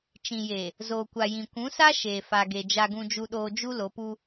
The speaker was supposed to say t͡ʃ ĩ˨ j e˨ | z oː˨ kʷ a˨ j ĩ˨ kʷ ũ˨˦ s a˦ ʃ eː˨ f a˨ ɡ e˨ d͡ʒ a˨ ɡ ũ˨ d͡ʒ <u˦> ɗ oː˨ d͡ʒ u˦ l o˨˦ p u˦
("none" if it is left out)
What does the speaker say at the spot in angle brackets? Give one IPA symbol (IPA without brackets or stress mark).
u˨